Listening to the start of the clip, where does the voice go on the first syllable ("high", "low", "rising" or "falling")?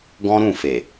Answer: high